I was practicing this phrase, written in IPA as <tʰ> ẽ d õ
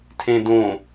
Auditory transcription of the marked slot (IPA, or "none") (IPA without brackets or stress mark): tʰ